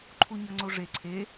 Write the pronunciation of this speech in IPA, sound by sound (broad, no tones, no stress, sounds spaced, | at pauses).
ǃʰ u ɲ ɐ ŋ͡ǀ o ʐ e ǀʰ e